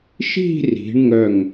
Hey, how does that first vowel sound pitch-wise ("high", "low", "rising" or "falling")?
falling